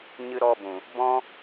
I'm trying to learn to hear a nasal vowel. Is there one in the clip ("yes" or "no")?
yes